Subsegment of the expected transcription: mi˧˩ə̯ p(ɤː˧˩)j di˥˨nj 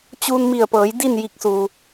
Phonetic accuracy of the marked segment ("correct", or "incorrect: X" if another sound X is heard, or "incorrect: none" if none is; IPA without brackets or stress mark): incorrect: ɤː˩˧